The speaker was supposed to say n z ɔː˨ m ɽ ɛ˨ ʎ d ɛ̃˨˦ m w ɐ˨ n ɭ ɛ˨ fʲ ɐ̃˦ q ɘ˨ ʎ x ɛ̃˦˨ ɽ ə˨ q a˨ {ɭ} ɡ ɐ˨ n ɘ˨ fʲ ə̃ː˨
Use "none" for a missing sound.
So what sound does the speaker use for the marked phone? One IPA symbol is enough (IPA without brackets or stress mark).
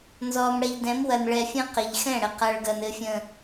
ɭ